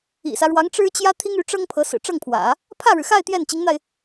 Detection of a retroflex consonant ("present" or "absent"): present